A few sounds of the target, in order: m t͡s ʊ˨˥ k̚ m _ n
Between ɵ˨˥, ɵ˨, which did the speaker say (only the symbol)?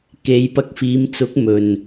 ɵ˨